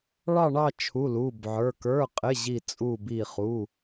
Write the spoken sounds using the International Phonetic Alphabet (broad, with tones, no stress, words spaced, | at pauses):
ɭɑ˥˧ɳɑ˥˧ t͡ʃʰu˧˥˧lu˧˥˧bʕə˞˧˥˧ kə˞˧˥˧qʼɪ˧˥˧ ʑi˥˧t͡sʼu˥˧bi˥˧ χu˧˥˧